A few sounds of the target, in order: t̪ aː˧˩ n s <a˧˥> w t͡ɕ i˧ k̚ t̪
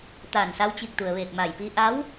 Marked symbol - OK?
yes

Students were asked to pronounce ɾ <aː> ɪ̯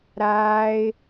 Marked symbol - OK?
yes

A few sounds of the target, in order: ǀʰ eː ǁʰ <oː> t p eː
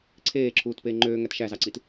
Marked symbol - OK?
no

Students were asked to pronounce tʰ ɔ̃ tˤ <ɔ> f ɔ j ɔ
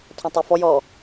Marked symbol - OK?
no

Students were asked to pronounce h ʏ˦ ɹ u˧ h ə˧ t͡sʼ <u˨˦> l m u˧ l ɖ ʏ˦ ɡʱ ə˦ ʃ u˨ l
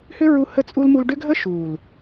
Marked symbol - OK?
no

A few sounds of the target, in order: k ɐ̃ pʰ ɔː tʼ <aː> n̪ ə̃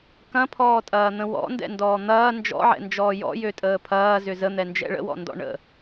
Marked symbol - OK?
no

